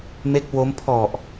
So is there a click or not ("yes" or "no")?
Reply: no